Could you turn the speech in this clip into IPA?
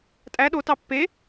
tʼ æ ɗ o t ɑ pː e

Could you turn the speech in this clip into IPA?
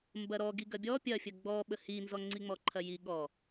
m b ɐ ɾ ɔ ɡ i ɡ ɐ bʲ ɔ pʲ ɐ fʲ ɐ ɡ͡b ɔ ɓ ə h i n z ɔ ŋ͡ǀ i ŋ͡m ɔ ǃʰ ɐ j i ɠ ɔ

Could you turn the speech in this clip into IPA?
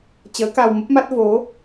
t͡ɕ əː˨˦ k a˧ w m ə˦˥ p̚ m a˦˥ t̚ v o˨˦

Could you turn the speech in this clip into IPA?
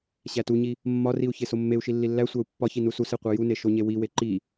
ɕ æ t u ɲ i | mː ɒ r i u̯ ç e s o mː e u̯ ʃ i lː i lː æ sʷ æ u̯ pː ɒ ç i n u s u s e qʷ æ j u n e ʃ o ɲ e w i w e ǃ i

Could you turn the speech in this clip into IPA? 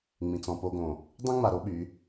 ŋ͡m ĩ˨ t͡s ɔ̃˨ p o˦ ɡ õ˨ | dˤ ĩ˦ ŋ͡m a˨ ɾ o˦ ɓ y˨˦

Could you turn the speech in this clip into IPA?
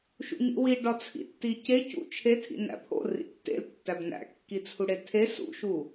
ʃ ṵ ɲ ḭ w i ɖ ɒ t͡sʰ ḭ tː i c e c ṵ t͡ʃʰ e tʰ ḭ n æ̰ pʰ o̰ r ḭ tː ḛ l tː æ b n æ̰ kː i t͡sʰ u ɽ e tʰ e s ṵ ʃ u

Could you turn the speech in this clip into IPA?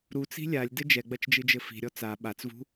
ɾ u t͡s i̤ lʲ a lʲ d ɘ d͡ʒ ɛ ɡ͡b ɐ t͡ʃ d͡ʒ ɨ d͡ʒ ɘ f i̤ ɾʲ ɔ t͡s a ɓ a t͡s v ṳ

